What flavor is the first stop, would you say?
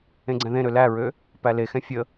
click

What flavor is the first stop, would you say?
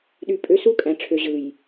implosive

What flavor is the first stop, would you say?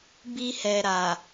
plain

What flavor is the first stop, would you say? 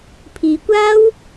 aspirated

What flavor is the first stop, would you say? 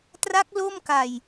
plain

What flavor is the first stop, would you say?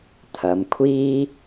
aspirated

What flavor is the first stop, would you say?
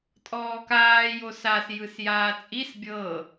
ejective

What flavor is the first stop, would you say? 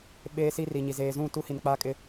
implosive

